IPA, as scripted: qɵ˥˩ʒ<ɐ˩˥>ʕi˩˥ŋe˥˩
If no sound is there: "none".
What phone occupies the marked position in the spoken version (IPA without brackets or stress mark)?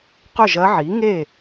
ɐ˧˥